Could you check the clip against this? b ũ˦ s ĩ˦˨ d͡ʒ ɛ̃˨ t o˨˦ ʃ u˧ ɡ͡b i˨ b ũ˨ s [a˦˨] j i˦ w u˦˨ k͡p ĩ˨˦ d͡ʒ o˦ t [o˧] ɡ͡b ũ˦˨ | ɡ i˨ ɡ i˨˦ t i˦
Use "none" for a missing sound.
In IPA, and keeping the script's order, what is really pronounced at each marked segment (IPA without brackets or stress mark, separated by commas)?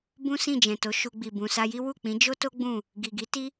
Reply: a˧, o˦